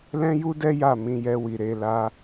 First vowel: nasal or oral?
nasal